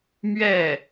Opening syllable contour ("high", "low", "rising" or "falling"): falling